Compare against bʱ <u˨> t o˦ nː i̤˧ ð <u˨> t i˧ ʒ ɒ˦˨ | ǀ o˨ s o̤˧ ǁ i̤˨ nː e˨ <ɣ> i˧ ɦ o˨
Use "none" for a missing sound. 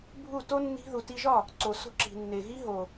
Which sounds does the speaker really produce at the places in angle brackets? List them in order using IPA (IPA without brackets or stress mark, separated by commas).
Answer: u˦˨, u˨, ɣ